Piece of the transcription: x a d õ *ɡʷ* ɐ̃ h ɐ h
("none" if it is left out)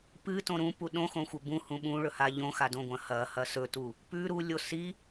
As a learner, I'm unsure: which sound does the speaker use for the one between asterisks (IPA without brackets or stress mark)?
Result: ɡʷ